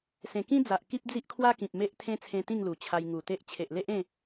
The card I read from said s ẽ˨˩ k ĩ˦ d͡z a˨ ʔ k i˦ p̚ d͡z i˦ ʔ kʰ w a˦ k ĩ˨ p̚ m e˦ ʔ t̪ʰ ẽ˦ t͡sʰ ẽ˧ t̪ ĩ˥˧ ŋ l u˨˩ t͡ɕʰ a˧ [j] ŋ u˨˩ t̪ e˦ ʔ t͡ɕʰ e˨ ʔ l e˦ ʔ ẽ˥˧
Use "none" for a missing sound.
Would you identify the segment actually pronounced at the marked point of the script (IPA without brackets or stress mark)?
j